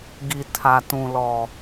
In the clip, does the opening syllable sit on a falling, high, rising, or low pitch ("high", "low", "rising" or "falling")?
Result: low